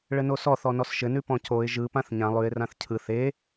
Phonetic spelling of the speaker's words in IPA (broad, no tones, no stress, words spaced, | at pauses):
ɭɘnosɔ θɔnɔsʃɘnʉ pɔ̃coɪ̯ ʒɯ pãθɲã lˠʉɪ̯rãθ cʰɯθ e